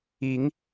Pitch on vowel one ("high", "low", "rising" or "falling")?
rising